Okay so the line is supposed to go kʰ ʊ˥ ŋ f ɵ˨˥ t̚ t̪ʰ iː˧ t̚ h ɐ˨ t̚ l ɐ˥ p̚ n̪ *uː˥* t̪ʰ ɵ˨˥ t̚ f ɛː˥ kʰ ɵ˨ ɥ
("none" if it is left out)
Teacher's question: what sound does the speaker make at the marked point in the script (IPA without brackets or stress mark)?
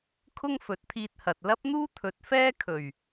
uː˥